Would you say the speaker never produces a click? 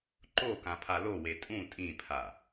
no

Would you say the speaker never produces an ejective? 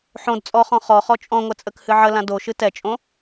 no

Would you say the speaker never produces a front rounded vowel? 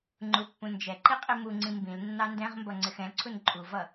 yes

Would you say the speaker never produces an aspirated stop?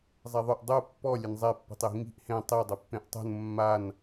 yes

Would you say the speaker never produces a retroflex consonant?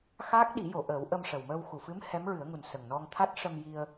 no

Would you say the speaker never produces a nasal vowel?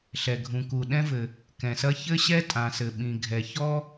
no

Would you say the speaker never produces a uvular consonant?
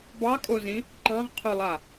no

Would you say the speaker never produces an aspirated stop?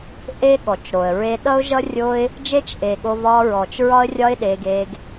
yes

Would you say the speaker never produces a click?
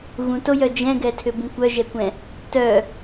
yes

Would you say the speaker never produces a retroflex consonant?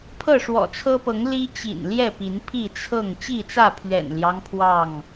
no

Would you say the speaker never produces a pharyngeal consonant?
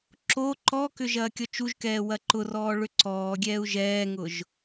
yes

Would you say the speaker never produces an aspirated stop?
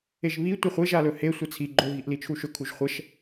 no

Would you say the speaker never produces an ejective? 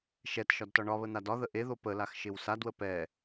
yes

